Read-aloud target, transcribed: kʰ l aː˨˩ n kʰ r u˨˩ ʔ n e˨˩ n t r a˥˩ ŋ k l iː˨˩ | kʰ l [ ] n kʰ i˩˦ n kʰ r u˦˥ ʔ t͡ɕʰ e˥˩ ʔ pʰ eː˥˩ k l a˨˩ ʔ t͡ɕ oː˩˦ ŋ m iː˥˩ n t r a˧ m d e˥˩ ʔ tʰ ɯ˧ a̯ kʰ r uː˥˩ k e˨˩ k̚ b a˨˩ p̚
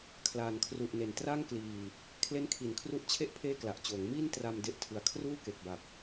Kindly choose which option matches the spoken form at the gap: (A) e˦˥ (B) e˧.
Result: A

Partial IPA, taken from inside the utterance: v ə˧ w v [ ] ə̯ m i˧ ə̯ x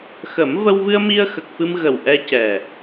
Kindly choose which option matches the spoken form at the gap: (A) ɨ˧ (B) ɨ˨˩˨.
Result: A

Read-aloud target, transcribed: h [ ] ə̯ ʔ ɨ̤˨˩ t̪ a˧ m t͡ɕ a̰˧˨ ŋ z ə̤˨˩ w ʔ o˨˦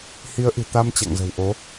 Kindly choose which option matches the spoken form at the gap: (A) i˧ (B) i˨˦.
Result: B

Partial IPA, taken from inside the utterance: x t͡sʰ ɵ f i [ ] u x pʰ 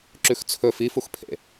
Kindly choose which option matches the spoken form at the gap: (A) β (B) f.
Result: B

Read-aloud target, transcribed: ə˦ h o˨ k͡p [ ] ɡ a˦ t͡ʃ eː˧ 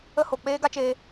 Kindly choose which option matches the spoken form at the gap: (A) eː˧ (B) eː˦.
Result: B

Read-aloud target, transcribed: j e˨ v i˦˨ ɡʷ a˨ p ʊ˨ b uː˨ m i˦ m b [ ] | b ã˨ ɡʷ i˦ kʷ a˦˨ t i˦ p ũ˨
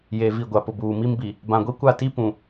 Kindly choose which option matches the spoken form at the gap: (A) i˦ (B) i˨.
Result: B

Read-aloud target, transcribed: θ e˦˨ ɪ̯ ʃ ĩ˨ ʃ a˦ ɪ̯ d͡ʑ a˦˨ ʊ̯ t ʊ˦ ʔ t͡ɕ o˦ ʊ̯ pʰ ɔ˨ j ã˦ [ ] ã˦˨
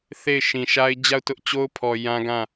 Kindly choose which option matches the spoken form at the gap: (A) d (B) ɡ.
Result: B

